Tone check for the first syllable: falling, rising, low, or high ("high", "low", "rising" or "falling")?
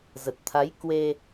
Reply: low